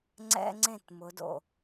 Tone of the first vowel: high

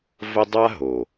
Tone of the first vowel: high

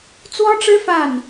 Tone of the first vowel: high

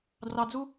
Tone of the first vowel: low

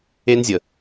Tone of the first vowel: high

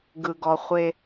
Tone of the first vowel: low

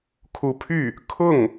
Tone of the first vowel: rising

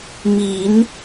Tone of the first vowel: rising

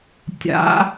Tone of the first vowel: rising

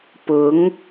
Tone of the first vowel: rising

